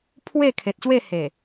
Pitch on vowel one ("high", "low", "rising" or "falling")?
falling